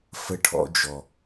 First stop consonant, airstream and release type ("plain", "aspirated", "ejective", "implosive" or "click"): aspirated